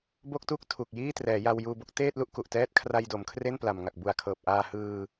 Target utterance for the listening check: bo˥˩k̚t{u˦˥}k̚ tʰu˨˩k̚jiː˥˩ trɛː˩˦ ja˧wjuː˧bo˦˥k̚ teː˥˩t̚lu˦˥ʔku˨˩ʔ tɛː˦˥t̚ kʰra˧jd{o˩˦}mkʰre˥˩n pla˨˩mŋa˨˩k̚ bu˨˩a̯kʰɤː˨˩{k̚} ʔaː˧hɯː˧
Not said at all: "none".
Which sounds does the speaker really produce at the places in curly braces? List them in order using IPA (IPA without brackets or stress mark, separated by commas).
u˥˩, o˩˦, p̚